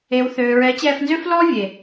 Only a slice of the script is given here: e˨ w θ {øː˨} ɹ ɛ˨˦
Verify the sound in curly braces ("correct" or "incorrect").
correct